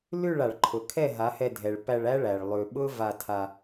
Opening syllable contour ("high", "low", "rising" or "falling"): falling